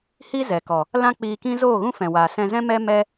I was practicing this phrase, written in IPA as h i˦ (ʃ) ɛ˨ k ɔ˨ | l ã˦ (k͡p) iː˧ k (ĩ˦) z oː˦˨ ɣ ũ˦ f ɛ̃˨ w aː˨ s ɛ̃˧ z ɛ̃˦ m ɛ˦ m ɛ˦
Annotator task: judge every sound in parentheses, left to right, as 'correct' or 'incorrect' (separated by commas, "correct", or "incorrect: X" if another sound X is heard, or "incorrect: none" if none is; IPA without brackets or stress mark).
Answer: incorrect: z, correct, correct